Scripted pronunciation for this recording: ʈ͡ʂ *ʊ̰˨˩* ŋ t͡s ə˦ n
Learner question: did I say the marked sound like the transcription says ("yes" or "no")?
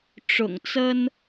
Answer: yes